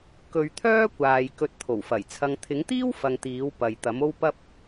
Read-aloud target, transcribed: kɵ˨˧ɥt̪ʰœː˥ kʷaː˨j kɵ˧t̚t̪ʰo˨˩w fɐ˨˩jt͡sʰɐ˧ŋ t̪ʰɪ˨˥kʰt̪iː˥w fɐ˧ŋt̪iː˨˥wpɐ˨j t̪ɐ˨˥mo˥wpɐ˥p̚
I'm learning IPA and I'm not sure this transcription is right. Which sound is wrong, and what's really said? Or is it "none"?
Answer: kʰ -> ŋ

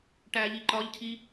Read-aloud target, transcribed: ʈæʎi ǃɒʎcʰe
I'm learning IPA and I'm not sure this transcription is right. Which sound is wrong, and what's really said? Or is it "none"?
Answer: e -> i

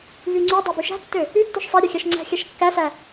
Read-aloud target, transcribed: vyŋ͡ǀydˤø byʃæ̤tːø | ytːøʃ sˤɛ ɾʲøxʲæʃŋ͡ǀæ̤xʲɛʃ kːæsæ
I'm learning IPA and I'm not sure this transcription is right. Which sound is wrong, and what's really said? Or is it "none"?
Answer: none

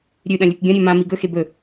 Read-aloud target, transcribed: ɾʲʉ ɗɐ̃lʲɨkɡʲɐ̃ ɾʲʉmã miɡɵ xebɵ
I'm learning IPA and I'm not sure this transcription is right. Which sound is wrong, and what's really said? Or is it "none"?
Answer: none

